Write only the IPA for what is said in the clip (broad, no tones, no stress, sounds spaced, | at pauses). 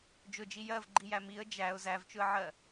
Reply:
d͡ʒ ʊ d͡ʒ i j ɜ v ɡ͡ǃ i j æ m i ə̯ d͡ʒ æ ʊ̯ z æ v t͡ʃ ʊ ə̯ ʕ ɜ